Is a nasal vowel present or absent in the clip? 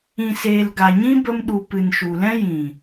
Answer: present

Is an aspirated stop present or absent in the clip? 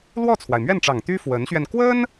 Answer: present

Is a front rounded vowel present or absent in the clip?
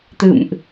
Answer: absent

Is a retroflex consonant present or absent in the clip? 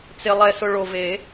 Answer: present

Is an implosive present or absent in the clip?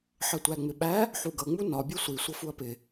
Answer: present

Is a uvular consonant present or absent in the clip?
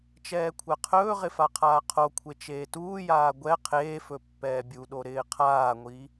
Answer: present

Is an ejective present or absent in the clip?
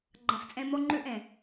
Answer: present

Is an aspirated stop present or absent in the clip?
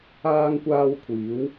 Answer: present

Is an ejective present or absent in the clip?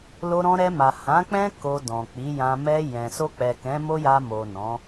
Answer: absent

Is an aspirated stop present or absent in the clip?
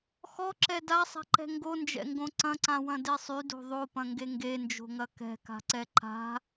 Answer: absent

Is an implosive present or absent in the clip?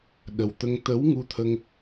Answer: present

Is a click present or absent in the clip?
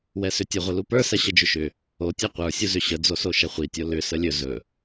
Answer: absent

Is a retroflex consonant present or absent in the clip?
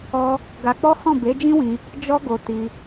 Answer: absent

